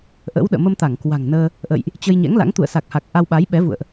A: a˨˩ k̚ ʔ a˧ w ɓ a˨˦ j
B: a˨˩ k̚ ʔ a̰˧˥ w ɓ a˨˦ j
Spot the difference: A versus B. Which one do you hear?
A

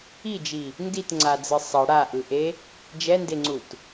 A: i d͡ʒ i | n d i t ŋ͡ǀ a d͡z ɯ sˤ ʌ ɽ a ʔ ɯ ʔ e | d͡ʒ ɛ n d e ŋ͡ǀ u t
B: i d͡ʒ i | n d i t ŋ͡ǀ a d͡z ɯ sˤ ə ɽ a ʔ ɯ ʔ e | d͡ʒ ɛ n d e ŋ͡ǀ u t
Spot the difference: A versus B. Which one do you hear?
A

